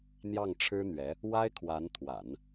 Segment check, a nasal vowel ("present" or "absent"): absent